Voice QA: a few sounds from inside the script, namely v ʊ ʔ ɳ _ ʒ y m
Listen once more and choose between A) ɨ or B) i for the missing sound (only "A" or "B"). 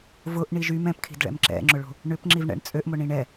B